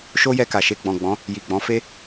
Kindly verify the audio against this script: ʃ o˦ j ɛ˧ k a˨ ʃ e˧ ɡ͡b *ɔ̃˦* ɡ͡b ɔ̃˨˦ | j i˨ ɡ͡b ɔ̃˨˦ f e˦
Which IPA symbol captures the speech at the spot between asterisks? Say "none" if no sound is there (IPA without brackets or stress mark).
ɔ̃˨